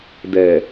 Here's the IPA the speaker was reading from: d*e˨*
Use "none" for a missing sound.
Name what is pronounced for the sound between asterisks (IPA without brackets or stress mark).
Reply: ɛ˨